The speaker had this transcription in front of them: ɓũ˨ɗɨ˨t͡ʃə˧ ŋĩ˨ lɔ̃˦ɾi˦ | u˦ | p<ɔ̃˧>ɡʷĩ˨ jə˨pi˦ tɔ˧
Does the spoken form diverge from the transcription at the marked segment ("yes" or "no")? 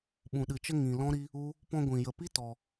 no